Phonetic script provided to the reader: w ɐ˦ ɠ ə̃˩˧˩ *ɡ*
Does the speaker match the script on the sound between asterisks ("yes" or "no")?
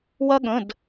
no